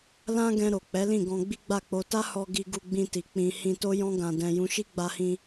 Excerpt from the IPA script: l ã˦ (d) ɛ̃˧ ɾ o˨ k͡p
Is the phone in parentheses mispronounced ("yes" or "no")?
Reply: yes